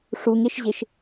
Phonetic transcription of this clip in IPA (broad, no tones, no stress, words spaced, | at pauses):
ʂuŋeʃʑeʃ